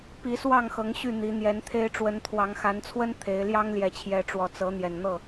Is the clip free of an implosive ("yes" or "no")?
yes